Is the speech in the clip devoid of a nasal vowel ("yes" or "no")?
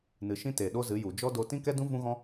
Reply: no